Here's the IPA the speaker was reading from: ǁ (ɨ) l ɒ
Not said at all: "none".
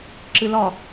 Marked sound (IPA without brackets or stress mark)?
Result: ɨ